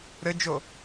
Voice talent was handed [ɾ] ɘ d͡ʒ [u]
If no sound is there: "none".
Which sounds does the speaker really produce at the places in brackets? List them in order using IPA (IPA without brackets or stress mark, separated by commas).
ɾ, o